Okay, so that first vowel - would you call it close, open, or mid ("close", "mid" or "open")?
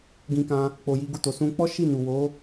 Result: close